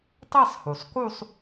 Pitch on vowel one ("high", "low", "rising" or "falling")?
falling